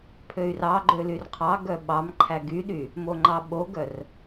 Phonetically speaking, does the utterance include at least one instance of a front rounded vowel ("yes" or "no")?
yes